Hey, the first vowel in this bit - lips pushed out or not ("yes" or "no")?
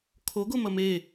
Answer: yes